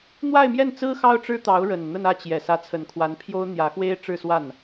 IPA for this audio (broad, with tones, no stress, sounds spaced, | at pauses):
n̪ w a˥˧ ɪ̯ m j ɛ˥˩ n t͡s ɹ̩˥ x ɑ˥ ʊ̯ ʈ͡ʂ ɻ̩˥ t̪ ɑ˧˥ ʊ̯ ɻ ə˨˩ n n̪ ə˥˧ n ä˥˩ t͡ɕ j ɛ˨˩ s ä˧˥ t͡sʰ ə˨˩ n kʰ w a˧˥ n pʰ j o˥ ʊ̯ n̪ j ä˧˥ x w e˥ ɪ̯ ʈ͡ʂ ɻ̩˥˧ s w a˥˩ n